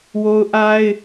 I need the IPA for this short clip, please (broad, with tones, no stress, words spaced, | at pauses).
wo˦ʊ̯ʔa˦ɪ̯